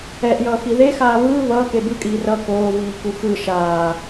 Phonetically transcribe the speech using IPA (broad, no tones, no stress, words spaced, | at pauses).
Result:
ɛʔjʌːxi ðexaː βɯː βʌːke bɯkʼiː rʌ koːviːku xɯ ʃaː